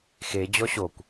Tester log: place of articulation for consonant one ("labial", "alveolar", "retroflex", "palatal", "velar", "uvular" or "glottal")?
velar